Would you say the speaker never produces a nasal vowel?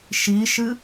yes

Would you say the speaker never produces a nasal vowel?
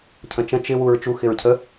no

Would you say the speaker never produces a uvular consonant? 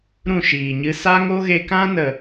yes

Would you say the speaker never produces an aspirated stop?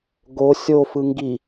yes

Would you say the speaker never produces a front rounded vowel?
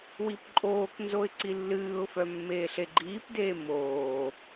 no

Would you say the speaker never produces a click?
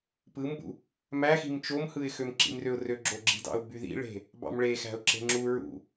no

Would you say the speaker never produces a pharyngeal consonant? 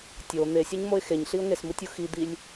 yes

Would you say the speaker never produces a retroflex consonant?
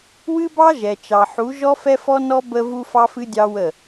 yes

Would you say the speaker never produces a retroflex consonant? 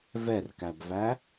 yes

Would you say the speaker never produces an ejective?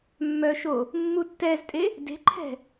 no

